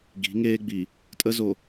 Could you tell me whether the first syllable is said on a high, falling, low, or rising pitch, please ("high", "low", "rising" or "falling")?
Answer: rising